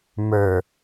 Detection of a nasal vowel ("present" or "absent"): absent